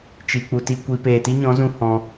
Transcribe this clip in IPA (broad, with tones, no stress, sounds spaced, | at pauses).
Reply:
t͡ʃ i˧ k͡p u˧ t i˦ kʷ i˧ p eː˨ t i˦ ɲ ɔ̃˨˦ z ũ˧ h ɔ̃˧